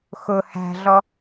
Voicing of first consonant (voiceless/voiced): voiceless